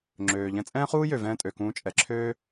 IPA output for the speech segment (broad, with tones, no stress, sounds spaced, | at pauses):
ŋ͡ǁ øː˩ ʎ ɛ̃˧ t͡sʼ ɛ̃ː˥ χ uː˥ j ø˩ v ɛ̃ː˧ tʼ ø˩ k ũː˧ t͡ʃʼ ɛ˩ ǁʰ øː˥